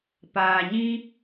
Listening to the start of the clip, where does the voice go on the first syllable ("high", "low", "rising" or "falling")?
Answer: low